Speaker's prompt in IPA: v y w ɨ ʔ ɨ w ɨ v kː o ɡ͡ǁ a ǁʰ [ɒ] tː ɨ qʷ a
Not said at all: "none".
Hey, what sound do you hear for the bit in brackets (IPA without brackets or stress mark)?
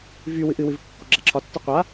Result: ɒ